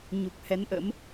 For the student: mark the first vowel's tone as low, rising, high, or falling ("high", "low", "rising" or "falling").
low